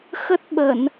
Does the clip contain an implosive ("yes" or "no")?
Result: yes